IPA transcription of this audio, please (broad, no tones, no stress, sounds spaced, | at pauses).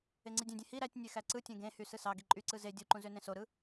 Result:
e ŋ͡ǀ i dʲ ẽ dʲ ẽ h i ɾ æ tʲ nʲ e x æ ǀ ɯ tʲ ẽ ɡ ẽ h y s ɯ s ɑ ɡ i ǃʼ y ǀ ɯ z e dʲ u ǃ ũ z ø n ẽ s o ɾ ɯ